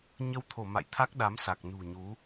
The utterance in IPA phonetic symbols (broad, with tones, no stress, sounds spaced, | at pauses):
ɲ ə˧ w t̪ʰ o˧˩ m a̰˧˨ j t̪ʰ a˦˥ k̚ ɗ a˨˦ m s a˨˩ k̚ n ṳ˨˩ ɲ u˨˦